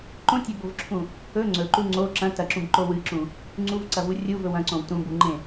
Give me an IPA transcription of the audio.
ǃõtʲɐbovǁʰũ | ɵ ŋ͡ǀɵǃu ŋ͡ǀo ǁɐ̃ tɐǁũbǃo wɨǁũ | ŋ͡ǀuvǀɐvu rʲuvɵw ɐ̃ǀõw tũbuŋ͡ǃẽ

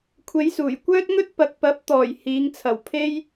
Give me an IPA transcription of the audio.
kʷʰe˨˧jsuː˨˩jkʷœː˥t̚ŋɵ˥t̚ pɐ˨k̚pɐ˨˥p̚t̪ɔː˨˩j hiː˨˧ŋt͡sʰɐ˨˩wpʰe˥j

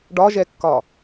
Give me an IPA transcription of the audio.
ɖɒʒɛkːɒ

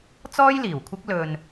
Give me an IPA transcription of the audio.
t͡sɔː˥jliː˨˩wkʷʰɪ˥k̚ lɵ˧n

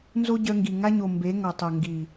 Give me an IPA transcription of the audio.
nzo˦ɟœ˧ŋɡi˨ ŋa˧ɲo˨ mbe˨˦ŋɔ˨tˤo˨ ŋɡi˨

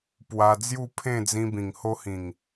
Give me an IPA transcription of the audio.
pwa˧ d͡zju˥˧ pʰẽ˥˧d͡zĩ˧bĩ˨˩ŋ ho˧hĩ˨˩ŋ

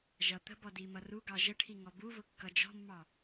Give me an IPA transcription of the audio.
ʒʌ t̪ə̤bɔdimʌ ruɡɑ ʒəʈʰiŋɔ buvʊkːʌ d͡ʒɔ̤mːɑ

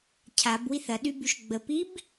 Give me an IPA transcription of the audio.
cʰabwiθ ɐɗybyʃ ɡ͡bəpib

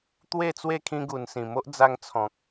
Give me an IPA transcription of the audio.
t̪we˥˧t͡swe˥˧ kʰĩ˦ɡu˧n sĩ˨˩mo˦ʔ d͡za˧ŋt͡sʰɔ̃˨k̚

